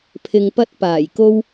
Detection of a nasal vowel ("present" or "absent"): absent